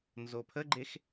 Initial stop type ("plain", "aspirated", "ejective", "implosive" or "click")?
aspirated